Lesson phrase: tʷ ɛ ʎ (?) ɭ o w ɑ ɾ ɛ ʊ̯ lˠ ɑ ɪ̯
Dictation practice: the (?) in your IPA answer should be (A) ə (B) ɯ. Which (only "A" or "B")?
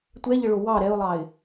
A